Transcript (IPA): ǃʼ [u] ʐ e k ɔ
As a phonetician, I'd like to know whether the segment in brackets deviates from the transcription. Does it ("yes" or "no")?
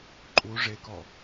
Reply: no